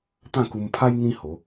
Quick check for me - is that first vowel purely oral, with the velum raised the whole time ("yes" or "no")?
no